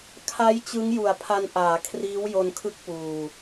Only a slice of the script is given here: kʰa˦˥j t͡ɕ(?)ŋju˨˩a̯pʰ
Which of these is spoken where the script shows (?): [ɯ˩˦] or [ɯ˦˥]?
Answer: ɯ˦˥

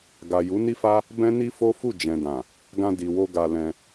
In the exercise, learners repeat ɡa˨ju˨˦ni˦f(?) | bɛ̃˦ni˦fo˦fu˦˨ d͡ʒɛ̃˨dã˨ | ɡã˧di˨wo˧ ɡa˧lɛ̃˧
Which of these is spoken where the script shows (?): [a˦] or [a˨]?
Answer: a˦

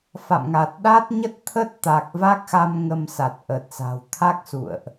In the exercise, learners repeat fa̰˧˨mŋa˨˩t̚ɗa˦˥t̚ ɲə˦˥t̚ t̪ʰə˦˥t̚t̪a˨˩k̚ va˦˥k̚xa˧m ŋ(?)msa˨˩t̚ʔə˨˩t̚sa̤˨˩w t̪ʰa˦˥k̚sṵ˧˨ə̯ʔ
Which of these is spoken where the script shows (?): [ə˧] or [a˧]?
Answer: ə˧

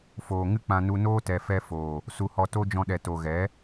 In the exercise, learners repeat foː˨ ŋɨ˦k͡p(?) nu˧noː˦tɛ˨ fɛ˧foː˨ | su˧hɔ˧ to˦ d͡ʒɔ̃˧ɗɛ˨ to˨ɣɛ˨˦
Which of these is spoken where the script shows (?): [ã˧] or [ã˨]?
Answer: ã˧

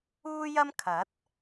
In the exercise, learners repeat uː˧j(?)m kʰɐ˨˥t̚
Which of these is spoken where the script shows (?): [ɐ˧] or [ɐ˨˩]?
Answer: ɐ˧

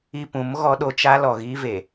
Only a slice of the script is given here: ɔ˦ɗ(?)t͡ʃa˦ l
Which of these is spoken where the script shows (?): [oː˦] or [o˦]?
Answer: o˦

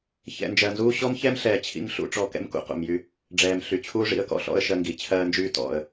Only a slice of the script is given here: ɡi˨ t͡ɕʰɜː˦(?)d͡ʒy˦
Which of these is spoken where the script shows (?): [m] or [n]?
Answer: n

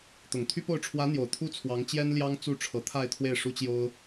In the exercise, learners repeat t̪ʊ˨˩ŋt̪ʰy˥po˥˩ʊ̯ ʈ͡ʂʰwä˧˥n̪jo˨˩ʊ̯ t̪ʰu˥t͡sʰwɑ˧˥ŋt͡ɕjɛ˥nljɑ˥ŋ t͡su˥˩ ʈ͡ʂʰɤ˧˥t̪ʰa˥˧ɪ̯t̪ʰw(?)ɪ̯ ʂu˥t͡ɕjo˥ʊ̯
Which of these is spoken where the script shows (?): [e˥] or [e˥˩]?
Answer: e˥˩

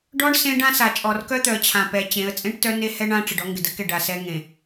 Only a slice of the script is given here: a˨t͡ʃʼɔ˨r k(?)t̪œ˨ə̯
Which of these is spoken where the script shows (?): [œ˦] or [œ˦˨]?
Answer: œ˦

